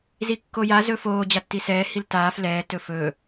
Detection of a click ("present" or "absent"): absent